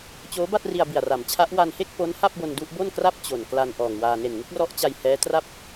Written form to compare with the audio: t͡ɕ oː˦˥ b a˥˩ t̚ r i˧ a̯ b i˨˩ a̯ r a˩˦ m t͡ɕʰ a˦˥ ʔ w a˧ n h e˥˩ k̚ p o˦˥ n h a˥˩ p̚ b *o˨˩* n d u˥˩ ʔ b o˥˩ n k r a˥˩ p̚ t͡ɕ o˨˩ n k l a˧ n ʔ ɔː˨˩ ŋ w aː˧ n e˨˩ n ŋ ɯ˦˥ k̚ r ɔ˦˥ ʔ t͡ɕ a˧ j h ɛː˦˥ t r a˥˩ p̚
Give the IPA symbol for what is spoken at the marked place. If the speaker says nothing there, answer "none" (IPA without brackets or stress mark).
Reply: o˧